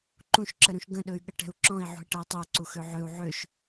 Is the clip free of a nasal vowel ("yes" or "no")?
no